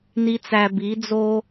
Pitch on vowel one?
low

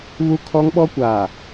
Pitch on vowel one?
high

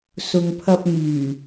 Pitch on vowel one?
low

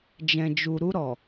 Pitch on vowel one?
low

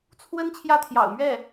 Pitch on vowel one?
high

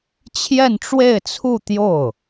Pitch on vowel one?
falling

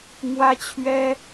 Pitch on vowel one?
high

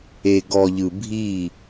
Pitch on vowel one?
low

